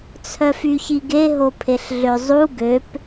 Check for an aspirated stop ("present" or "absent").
present